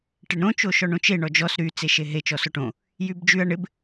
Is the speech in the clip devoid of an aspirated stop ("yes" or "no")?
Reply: yes